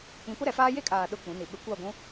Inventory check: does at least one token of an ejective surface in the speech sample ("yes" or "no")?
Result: yes